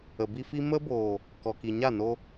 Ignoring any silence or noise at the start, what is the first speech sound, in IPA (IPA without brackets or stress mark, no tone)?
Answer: ə